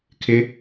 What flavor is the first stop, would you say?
aspirated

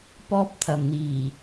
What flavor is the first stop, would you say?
plain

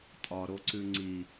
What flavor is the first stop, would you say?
ejective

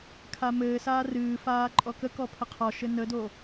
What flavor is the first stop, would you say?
aspirated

